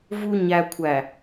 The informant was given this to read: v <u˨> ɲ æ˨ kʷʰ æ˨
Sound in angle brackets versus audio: correct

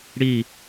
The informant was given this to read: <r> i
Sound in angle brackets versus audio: incorrect: ɽ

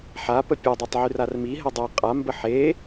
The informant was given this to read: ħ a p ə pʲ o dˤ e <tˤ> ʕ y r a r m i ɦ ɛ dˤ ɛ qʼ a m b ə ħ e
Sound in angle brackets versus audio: correct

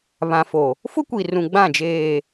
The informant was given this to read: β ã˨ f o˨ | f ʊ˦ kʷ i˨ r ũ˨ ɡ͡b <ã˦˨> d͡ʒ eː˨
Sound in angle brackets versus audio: correct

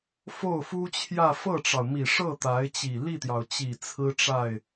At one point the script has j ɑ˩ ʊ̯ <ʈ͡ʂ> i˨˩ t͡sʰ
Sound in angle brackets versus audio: incorrect: t͡ɕ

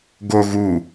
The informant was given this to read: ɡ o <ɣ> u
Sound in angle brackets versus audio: correct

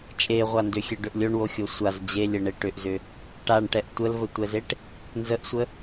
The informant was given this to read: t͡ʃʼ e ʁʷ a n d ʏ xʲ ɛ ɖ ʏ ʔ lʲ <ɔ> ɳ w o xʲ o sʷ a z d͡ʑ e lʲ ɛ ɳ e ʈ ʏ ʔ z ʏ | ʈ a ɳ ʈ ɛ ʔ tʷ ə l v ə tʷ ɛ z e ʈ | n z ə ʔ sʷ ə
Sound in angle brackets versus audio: incorrect: o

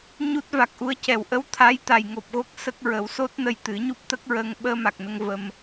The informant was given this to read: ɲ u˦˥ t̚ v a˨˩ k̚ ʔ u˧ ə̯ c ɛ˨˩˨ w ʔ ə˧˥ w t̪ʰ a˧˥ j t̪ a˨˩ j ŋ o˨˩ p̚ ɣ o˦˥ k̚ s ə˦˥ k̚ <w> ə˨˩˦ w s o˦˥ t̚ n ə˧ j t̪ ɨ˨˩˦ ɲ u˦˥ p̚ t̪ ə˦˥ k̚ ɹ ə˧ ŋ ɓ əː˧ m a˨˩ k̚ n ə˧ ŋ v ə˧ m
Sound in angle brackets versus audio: incorrect: ɹ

